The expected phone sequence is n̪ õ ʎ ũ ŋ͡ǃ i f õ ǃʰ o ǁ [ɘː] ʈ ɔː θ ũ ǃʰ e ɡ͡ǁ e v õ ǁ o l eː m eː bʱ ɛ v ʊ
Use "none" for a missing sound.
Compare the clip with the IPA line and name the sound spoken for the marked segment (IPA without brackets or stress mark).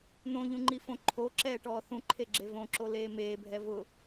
ɛː